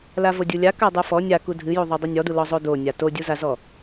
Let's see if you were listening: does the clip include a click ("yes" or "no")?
no